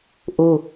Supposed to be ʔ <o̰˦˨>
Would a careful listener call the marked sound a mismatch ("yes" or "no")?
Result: yes